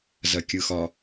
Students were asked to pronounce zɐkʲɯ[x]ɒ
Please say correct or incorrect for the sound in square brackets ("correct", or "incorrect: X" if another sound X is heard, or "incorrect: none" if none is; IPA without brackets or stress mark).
correct